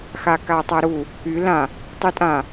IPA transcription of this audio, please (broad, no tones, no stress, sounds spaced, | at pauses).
x a k a tˤ a ɾ u | y l ã | tˤ ʉ tʼ ã